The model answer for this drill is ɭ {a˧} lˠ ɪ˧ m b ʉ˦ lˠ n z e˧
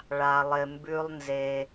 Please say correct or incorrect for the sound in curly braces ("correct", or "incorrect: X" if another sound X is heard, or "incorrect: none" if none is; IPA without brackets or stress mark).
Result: correct